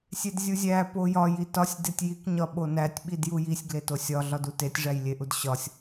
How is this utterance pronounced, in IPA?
sʲ e d zʲ u zʲ æ p o j ɒ j i t ɒ sʲ d e tʲ j i k ɲ ɒ ɓ o n æ tʲ ɓ i d j u j i sʲ ɡ l e t o sʲ ɒ ɮ ɒ d u t e tʲ ʐ æ j lʲ e ʔ u d ɕ ɒ sʲ

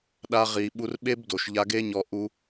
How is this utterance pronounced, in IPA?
ɗ a˧ ʁ i˨ ɓ u˧ r ɓ e˦ b d o˨ ʃ ʎ a˧ ɡ e˦ ɲ ɔ˧ ʔ u˦

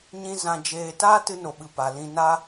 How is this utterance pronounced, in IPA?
ɲ ĩ˧ z ã˧ d͡ʒ eː˧ t aː˦ t ɨ˧ n o˨ ɓ ɨ˨ p a˨ l ĩ˧ n a˧

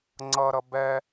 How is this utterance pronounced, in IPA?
ŋ͡ǀ ʌ ɾ ʌ b ɛ

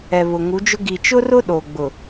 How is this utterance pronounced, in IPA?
ɛ˨ β ʊ˨ ŋ u˨˦ d͡ʒ ʊ˦ ɡ i˨ t͡ʃ ʊ˦ r ʊ˦ ɗ o˨ ɡ͡b ʊ˨

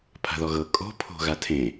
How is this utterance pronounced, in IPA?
pʰ a̤ ð ɔ ɣ ɤ kʼ o̤ pʰ o̤ ɣ a tʰ ẽ

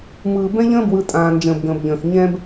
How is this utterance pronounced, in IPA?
m ɯː˨ b ɛ̃˦ ʎ ə̃ː˦ b w ɯ˨ tʼ ãː˨ n d͡ʒ ə̃ː˨ b ɡ ə̃ː˨ b ʎ ə̃ː˨ x ɲ ɛ̃˦ b

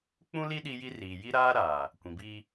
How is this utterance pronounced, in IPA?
k͡p ũ˦ l i˦ ɗ i˦ j i˦ r iː˨ j i˦ ɾ aː˦ ɾ aː˨ | kʷ ĩ˨ b iː˦

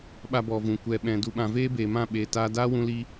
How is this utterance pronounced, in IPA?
ɓ a˧ b ɔ˨ v ũ˨ kʷ ɛ˨ ɓ ɛ̃˨ d u˨ ɓ ã˨ v eː˦ b eː˨ m ã˦˨ ɓ eː˨ t aː˧ d aː˦ w ũ˧ l i˦

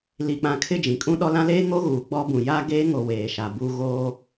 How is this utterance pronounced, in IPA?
l i˨ k͡p ã˨ kʰ ɪ˦˨ d͡ʒ ĩ˨ kʼ ũ˦ ɗ ɔ˦ l ã˦ l eː˦ ŋ o˦ ɣ uː˨ ɡ͡b ɔ˦ b ũ˨ j aː˦ ɡ eː˦ ŋ o˨ w eː˨ ʃ a˨ b uː˦ ɣ oː˦

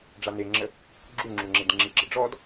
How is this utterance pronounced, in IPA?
ɖ͡ʐ a n e ŋ͡ǁ ə | ɡ͡ǁ u ŋ͡ǁ u ŋ͡ǁ e d ŋ͡ǁ i ɡ͡ǁ ə̰ ɖ͡ʐ ɔ d

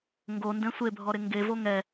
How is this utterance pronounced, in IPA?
ŋ ɡ o n d ɛ̃ sʷ e bʱ ɔ ɾ ɪ ŋ ɡ e v o ŋ ɛ

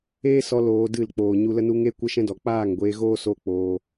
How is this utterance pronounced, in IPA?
eː˦ s ɔ˧ l oː˧ d ɨ˦˨ l k͡p oː˨ ɲ u˧ l ə˦ n u˦ ŋ e˦ kʷ ə˦ ʃ ɛ̃˦ d ɔ˨ k͡p aː˦˨ ŋ ɡʷ eː˧ ɣ oː˦ s o˦ k͡p oː˧

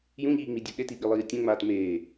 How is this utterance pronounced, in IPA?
j ũ ʎ iː ŋ͡m i dʲ u ɗ e t i ɓ i lˠ iː tʲ õ ŋ͡m aː t m eː

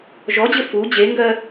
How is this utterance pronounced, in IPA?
ʒ ɔ d͡ʑ ɘ f u d͡ʑ e ŋ ɡ ɜ

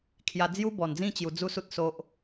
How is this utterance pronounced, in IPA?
kʰ j a˧ d͡z j u˦ b ɔ˨˩ n d͡z ĩ˥˧ t͡ɕ j u˧ d͡z u˦ s u˦ t̚ s o˦ ʔ

